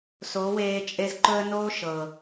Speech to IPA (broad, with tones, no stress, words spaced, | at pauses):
so˨˦weː˧ t͡ʃʼe˦z ǃɵ˦ə̯noː˦ ʃɤ˨